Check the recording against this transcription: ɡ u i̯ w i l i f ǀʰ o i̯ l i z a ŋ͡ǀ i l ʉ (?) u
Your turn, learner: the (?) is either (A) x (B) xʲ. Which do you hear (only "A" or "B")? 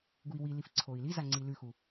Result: A